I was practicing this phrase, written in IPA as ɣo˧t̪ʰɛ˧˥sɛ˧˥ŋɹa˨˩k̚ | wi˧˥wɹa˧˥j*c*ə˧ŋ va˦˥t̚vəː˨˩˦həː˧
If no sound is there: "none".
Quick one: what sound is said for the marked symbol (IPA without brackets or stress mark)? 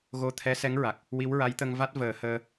t̪